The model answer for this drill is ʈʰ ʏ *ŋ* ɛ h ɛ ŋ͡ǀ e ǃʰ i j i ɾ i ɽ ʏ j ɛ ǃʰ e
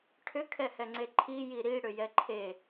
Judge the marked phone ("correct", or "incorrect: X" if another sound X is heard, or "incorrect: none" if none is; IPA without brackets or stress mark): incorrect: kʰ